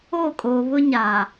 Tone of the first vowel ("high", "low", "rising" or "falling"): falling